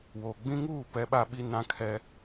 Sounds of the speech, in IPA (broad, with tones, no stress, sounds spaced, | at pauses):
w o˨ ɡ͡b ĩ˦ ŋ uː˦˨ p ɛ˦ ɓ a˦ ɓ i˦ n ã˦ kʰ ɛ˦